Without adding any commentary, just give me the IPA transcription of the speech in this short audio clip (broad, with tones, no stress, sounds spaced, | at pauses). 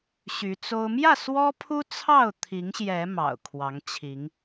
ɕ y˨˦ t͡s o˦ ʊ̯ m j ä˥˨ s w ɔ˦ pʰ u˦ t͡sʰ ɑ˥˨ ʊ̯ t̪ʰ i˨˦ ŋ ɕ j ɛ˨˦ m ɑ̰˨˩ ʊ̯ kʰ w ɑ˨˦ ŋ t͡ɕʰ i˨˦ ŋ